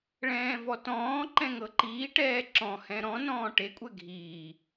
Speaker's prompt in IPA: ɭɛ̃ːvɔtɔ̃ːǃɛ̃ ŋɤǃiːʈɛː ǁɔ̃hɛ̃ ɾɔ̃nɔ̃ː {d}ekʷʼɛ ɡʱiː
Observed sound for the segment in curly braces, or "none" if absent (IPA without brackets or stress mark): ʈ